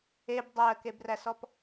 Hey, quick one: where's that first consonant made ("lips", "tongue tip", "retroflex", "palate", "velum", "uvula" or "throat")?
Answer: lips